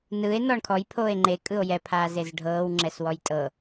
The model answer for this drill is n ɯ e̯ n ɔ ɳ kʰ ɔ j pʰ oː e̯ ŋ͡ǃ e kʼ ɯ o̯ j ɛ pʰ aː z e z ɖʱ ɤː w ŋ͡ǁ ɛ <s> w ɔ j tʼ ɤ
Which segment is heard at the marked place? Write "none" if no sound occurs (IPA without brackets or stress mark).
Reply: s